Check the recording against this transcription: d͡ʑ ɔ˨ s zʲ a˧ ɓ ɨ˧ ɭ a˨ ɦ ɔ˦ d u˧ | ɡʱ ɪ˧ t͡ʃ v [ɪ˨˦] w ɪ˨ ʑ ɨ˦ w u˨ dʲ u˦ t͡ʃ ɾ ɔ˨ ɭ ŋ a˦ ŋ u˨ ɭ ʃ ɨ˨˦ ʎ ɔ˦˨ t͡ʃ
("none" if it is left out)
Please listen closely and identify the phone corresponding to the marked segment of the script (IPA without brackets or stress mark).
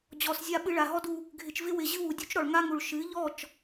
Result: ɪ˦